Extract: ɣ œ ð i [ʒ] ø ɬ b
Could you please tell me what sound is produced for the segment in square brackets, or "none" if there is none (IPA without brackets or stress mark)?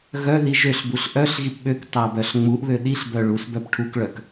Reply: ʒ